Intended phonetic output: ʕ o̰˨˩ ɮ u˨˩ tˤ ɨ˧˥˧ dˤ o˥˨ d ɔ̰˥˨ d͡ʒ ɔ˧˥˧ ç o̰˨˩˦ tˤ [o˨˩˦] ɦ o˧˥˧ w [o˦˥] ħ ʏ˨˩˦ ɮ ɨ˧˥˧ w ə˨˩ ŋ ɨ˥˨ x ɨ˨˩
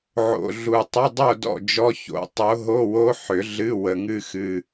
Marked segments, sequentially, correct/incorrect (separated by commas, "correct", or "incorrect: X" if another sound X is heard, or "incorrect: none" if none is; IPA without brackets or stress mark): incorrect: o˨˦, correct